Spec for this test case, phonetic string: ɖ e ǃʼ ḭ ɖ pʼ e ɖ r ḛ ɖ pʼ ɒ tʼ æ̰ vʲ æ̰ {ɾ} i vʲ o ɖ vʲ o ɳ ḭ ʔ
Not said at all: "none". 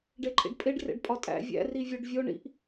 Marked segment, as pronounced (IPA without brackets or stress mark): r